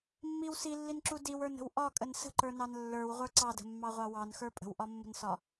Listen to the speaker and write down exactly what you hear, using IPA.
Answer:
mːiw silːinǁu diwə˞nə̤w ʔɒkʼən sə̤ǃə˞nɑn lːə˞wʁʷə˞ ǀɑdə̤mːɑʁʷɑ wɑnxə˞ pʼə̤wʔɒmːə̤nsɒ

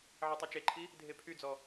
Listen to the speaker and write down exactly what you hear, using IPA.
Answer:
ʕɛtˤɵt͡ʃeǃʰi | dʱepʰyd͡zɔ

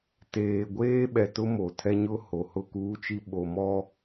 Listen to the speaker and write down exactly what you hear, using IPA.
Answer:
teː˨ ɡʷeː˦ɓɛ˨ tʊ˦mo˨ tʰɛ˦ɲʊ˦ ho˨hʊ˦˨kuː˦t͡ʃi˦ ɓo˨mɔ˦

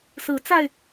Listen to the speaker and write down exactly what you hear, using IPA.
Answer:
sɹ̩˨˦t͡sa˧ɪ̯

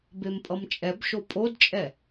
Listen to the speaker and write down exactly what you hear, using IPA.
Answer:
bempʼʌmt͡ʃʼɛbʃo pʼodt͡ʃʼɛ

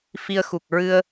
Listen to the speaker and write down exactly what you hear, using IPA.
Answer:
fi˧ə̯ xu˨˩k̚ ɹɨ˧ə̯

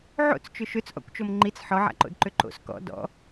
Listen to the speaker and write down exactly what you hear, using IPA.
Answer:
ʕo̰t͡st͡ʃʏ ʃøt͡sʔɔ̰kʷt͡ʃom ŋ͡ǃit͡s ħɔʕa̰ǃo̰dǃø ǃo̰s kɔ̰ dɔ̰

